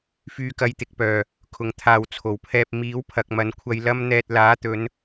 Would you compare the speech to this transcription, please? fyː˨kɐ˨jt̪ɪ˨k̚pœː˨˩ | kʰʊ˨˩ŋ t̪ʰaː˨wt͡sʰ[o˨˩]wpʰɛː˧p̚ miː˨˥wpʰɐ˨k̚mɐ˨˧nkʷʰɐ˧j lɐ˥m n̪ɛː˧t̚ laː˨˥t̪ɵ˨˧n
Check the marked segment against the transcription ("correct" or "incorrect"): correct